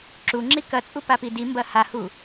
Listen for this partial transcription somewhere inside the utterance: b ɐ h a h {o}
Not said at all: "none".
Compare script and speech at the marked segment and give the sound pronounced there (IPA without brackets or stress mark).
u